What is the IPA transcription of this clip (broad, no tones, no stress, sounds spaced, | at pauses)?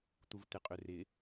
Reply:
t̪ u v t̪ ɪ qʼ ʏ r ɪ